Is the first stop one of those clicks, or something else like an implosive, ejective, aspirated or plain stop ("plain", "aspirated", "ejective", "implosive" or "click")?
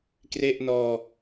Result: plain